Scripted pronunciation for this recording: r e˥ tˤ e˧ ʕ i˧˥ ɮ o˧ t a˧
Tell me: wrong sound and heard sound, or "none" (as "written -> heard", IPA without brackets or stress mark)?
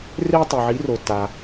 ɮ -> r